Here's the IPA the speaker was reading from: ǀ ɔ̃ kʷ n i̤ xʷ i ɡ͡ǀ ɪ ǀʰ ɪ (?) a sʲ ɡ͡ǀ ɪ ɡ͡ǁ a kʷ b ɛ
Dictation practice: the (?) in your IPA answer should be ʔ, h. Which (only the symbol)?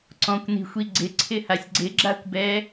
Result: h